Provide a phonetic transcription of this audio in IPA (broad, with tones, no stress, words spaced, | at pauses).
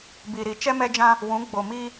bi˨ɾi˨ t͡ʃɛ˦mɛ˦d͡ʒã˦ | wũ˨˦ ɡ͡bo˨mi˦